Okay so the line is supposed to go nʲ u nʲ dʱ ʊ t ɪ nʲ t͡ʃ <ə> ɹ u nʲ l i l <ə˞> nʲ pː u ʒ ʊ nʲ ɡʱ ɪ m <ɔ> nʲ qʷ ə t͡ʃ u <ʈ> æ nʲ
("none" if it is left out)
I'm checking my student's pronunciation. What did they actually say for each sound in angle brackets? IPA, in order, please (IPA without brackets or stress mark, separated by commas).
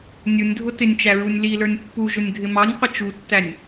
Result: æ, ə˞, ɑ, tː